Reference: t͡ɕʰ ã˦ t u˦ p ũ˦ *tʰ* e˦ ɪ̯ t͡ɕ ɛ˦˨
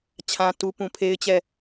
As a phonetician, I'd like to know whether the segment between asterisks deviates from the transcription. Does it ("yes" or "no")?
yes